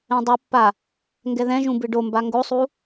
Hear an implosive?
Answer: no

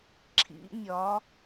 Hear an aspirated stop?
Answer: yes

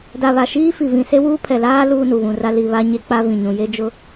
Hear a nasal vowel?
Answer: yes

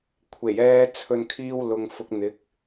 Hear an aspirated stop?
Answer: yes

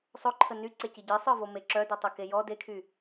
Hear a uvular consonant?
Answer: no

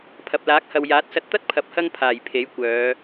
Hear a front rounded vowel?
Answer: yes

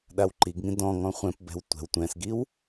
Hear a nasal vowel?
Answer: yes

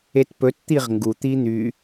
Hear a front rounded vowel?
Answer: yes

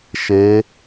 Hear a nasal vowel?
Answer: no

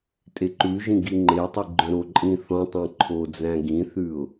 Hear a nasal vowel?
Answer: yes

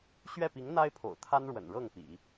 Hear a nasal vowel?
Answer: no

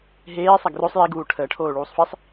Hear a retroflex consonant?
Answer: yes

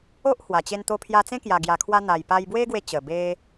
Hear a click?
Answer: no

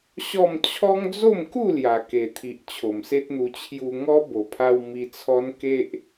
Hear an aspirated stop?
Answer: yes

